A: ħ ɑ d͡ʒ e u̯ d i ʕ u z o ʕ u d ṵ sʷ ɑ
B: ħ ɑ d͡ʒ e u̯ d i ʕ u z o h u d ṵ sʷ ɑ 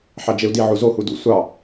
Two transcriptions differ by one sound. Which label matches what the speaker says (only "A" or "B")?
B